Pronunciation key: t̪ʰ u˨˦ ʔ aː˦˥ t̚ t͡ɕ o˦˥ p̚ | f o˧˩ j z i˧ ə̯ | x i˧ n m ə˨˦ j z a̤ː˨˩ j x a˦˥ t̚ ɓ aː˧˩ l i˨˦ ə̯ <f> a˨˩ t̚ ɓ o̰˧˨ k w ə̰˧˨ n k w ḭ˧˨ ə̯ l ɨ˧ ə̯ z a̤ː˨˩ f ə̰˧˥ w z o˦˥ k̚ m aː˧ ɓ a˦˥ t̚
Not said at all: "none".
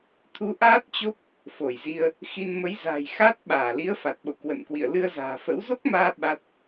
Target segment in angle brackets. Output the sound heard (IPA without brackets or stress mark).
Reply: f